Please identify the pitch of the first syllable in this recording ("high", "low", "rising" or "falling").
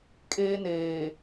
high